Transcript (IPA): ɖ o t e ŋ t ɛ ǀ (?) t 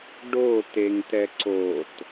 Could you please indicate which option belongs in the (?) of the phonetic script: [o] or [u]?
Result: o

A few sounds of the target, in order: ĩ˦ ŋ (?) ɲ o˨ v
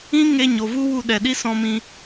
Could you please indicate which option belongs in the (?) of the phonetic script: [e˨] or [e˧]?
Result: e˧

